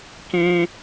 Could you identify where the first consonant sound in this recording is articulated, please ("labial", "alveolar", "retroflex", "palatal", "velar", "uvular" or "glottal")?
velar